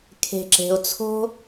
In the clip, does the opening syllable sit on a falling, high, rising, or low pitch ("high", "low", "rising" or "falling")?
low